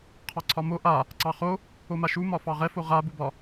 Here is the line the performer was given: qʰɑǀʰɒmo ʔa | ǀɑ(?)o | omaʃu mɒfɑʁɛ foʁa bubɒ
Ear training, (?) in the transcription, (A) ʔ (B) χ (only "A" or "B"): B